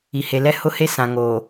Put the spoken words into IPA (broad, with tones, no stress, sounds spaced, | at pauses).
i˨ h e˨ l ɛ˦ h ʊ˦ h e˦ s ã˨ ŋ oː˨